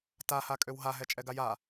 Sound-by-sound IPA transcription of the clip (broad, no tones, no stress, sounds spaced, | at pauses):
t a h a kʼ ø w ɦ a ɦ ɛ t͡ʃʼ ɛ ɡ a j a